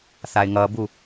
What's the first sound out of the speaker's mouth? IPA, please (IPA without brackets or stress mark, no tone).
θ